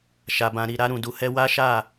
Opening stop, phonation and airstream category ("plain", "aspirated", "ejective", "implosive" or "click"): plain